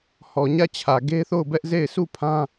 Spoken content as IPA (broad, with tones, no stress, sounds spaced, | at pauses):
h ɔ˨ ɲ ä˦˨ t͡ɕʰ ä˨ ɡ e˦ θ o˦˨ ʊ̯ b ɛ˦ ʔ z e˦˨ ɪ̯ sʰ u˦˨ pʰ ã˦